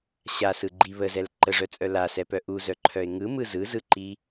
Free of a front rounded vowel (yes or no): no